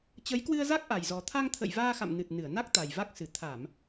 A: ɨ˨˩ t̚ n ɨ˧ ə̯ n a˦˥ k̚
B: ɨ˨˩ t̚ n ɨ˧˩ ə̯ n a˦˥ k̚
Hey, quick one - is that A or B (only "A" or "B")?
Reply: B